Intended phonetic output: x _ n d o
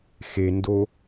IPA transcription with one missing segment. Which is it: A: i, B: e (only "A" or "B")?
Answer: B